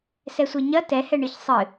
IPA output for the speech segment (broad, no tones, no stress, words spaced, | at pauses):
sɛsʷeɲɐ tɛhɛɳɨç sˤɨ